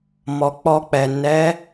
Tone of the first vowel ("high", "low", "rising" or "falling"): low